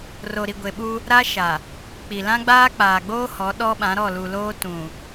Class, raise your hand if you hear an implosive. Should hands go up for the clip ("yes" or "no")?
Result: yes